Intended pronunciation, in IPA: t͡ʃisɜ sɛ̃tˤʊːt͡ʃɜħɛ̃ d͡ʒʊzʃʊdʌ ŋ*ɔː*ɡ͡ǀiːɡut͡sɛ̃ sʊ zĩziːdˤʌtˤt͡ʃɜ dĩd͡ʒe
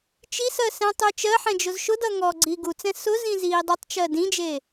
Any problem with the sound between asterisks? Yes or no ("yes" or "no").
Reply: no